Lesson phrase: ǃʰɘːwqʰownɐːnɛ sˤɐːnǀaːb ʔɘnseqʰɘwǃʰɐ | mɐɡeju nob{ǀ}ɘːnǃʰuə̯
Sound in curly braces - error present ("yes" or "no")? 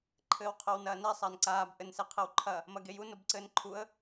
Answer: no